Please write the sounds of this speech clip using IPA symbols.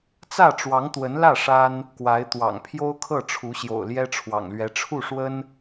t͡sä˥˩ʈ͡ʂwɑ˧˥ŋt̪wə˧˥nlä˥˩ ʂa˥n | kwa˧˥ɪ̯t̪wɑ̰˨˩ŋ pʰjo˥ʊ̯kʰɤ˥˩ʈ͡ʂʰu˧˥ɕjo̰˨˩ʊ̯ ljɛ˥ʈ͡ʂʰwɑ̰˨˩ŋlɥɛ˧˥ ʈ͡ʂʰu˥˩ʂwə˥n

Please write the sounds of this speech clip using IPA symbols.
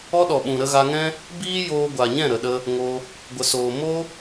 ɔ˦ɗɔ˨ɓũ˨ ɾə˧ɣa˧ŋɛ̃˦ | biː˦ joː˧ɡʷa˨ɲɛ̃˦˨ ɾə˨ɗə˧ | ŋo˧ | ɡʷə˨soː˨ mo˦

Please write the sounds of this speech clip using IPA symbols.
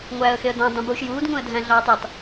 ŋʷæːə̯xeə̯dɑ̃ dˤũbuːʃjuːd ŋũə̯dʱæ̃ɮɑːtˤetˤ

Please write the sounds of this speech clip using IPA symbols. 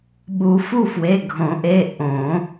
ɓu˨˩˦fu˦˨fwe˩˧˩ ɡʱõ˨˩˦ʔe˩˧˩ ʔõ˨˩˦

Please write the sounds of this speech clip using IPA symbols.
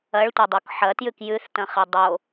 ɐɭtʷɐdˤok ħɐtjʉk jʉθtɐ̃χe dˤo

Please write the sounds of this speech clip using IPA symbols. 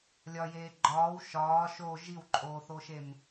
lʲɒjeː ɡ͡ǃɒːw ʃɒː ʃo ʒiwǃʼoːθoʃem

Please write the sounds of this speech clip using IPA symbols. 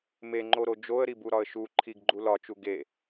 meŋ͡ǃoɾo d͡ʒoə̯ɾibuɾɒə̯ ʃu ǃʰiɡɡ͡ǃu lɒt͡ʃu ɡe

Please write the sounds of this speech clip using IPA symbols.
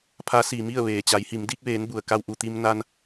pʰa˧˥ siː˩mi˥˨ə̯ ʋeː˩t͡ɕa˩˧jhi˩˧m di˧k̚ʋeː˩˧n bu˩ə̯ka˧w ʔu˩t̪i˧mna˧n

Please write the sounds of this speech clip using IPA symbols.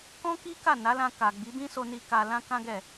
kɔ̃˦ki˦ ka˦˨na˨˦lã˧ ka˨ɡ͡bi˨˦bĩ˦ so˧ni˧ ka˧lã˦ kã˦ɡɛ˦˨

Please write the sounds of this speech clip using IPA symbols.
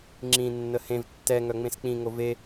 ŋ͡ǁĩnːə hẽv tːɛ ŋœŋ͡mẽsk͡pĩŋo ve

